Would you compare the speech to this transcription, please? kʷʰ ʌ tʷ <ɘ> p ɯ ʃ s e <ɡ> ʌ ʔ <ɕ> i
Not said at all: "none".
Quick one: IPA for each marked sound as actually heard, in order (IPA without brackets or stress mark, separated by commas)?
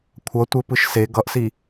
ɘ, ɡ, s